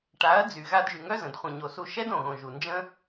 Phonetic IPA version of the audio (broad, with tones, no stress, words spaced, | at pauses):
ʈa˨˦ɐ̯d͡zy˨ ɣa˧dʒy˨ŋœ˦zə̃˨d χʷə̃˨ɲo˨su˧ ʃɛ˦d õ˨ɣõ˨ʒu˨ nd͡ʒə̃˦